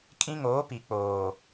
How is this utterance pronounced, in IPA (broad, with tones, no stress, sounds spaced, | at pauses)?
kʼ ĩ˦ ŋ oː˨˦ p i˨ k͡p oː˨